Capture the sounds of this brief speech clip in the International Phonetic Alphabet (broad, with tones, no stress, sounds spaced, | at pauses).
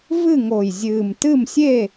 v ɨ˥˨ ŋ o˨˩ j zʲ ɨː˨˩ m t ɨ˥˨ m sʲ e˥˨